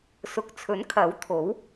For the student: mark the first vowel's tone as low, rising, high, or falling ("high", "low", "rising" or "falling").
low